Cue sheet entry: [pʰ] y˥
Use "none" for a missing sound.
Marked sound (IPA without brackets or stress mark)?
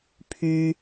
pʰ